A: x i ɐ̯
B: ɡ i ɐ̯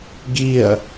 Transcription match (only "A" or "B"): B